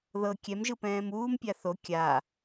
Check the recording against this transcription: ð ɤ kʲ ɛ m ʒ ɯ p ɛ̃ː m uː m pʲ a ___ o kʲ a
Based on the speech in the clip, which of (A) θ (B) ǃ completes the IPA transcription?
A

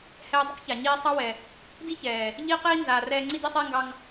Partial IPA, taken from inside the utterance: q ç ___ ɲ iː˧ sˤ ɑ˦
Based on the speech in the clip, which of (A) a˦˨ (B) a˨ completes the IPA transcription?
B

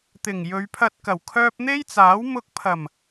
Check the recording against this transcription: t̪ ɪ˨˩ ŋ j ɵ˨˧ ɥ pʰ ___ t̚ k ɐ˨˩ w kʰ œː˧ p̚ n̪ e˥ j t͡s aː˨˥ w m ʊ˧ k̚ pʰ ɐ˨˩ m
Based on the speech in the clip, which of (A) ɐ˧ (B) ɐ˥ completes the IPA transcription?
A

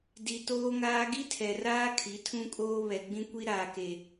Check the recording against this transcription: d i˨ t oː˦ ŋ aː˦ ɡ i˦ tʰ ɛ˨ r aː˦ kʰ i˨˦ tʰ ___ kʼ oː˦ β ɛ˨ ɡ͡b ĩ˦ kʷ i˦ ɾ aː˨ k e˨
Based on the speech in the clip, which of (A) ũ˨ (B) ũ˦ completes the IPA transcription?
B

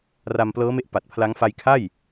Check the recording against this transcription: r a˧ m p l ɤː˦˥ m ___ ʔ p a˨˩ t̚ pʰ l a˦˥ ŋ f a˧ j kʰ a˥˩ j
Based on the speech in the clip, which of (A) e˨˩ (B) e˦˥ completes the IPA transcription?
B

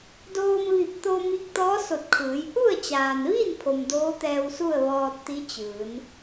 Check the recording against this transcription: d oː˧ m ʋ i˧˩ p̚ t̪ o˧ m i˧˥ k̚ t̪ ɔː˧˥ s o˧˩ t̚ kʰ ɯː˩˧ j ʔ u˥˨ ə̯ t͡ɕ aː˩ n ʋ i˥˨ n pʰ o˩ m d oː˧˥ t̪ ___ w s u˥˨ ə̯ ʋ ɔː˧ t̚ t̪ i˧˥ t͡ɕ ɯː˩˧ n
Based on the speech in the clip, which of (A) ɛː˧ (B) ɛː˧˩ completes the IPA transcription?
A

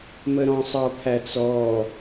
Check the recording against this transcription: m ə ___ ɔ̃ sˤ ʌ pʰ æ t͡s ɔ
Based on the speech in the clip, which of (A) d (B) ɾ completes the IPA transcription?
B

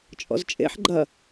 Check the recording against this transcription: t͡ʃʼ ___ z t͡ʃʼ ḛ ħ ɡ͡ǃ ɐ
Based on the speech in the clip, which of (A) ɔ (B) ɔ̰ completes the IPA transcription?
B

